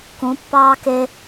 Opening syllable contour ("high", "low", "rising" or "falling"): rising